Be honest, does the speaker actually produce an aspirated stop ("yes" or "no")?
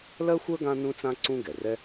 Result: no